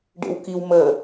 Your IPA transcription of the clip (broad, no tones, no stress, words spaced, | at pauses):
ɖḛwkiwmə